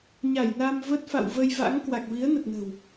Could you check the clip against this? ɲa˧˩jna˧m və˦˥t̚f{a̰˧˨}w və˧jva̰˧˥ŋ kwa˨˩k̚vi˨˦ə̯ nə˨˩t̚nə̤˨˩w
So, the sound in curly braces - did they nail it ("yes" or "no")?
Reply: yes